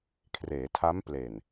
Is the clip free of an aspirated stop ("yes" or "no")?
no